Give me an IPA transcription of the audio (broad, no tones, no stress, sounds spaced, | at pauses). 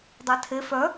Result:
dˤ a tʰ e f œ